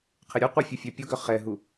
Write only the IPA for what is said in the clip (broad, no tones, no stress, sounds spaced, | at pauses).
qʰ ɪ ɾʲ ʊ qʷ ɪ fʲ ʊ fʲ œ pʲ ʊ ɡ œ χ ɛ ɦ u